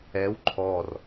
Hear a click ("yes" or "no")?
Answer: yes